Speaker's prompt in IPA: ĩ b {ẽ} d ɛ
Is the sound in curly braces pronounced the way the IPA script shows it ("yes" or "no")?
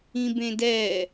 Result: yes